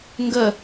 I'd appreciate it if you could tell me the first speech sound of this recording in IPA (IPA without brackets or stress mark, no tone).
ŋ